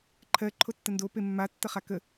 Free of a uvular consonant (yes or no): no